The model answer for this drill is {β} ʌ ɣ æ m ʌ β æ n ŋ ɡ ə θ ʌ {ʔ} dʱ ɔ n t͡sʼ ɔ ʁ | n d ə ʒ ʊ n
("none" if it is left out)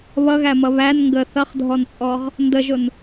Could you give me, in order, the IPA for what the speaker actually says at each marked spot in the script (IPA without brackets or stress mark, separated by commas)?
β, χ